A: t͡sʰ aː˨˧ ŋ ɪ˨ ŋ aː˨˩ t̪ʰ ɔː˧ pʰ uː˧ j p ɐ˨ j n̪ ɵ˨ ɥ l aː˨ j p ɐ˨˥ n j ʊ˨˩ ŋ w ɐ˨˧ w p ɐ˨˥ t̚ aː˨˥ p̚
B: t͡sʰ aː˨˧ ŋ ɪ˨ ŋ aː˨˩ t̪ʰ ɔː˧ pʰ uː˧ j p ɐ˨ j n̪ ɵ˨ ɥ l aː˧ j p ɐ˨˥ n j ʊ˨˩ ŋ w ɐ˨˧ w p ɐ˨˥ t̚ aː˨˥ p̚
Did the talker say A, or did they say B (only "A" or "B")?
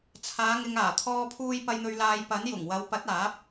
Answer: A